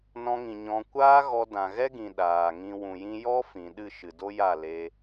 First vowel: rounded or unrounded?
rounded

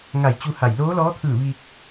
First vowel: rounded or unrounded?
unrounded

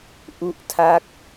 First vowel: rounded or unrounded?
rounded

